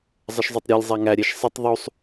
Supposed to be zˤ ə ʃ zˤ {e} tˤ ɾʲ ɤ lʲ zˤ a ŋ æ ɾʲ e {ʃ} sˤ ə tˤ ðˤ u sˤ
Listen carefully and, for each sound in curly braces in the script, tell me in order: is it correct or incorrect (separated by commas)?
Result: incorrect, correct